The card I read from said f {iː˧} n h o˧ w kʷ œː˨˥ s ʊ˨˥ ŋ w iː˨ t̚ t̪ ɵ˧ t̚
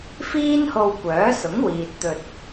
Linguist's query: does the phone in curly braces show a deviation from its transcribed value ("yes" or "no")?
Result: yes